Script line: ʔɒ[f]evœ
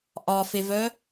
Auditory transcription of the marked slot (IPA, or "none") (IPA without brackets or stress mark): f